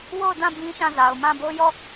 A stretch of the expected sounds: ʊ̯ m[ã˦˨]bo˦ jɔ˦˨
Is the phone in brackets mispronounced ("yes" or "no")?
no